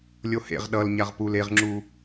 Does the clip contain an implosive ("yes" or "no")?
yes